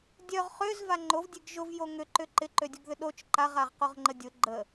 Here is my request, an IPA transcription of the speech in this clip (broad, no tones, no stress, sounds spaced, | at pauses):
dʲ œ ʁ χ ø z v a ŋ͡ǃ o v dʲ e ɡ ʒ ʊ v j o ŋ ʏ ǃ ʏ ǃ ɪ ǃ ø dʲ u ɡ ð ʏ ɗ o t͡ʃ ǃ a ʁ a ʁ q o ʁ ŋ͡ǃ ə dʲ ʊ ɡ͡ǃ ə